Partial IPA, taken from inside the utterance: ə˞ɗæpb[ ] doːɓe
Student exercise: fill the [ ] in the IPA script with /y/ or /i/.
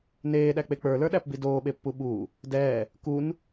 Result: i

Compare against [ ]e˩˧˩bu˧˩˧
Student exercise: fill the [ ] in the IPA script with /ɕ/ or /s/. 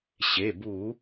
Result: ɕ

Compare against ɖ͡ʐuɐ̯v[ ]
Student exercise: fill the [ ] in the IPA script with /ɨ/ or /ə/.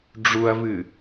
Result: ɨ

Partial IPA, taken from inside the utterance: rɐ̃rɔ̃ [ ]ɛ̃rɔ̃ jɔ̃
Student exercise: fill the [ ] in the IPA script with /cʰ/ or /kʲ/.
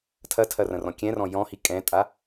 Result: kʲ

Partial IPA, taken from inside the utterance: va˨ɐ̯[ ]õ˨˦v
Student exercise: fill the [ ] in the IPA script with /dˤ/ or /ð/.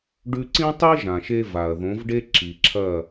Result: ð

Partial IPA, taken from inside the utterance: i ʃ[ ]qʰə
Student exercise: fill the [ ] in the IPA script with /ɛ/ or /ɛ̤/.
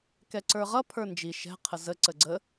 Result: ɛ̤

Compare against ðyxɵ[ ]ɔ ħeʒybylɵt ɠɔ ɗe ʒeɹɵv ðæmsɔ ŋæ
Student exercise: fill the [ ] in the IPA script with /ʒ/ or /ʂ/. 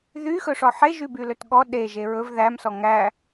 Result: ʂ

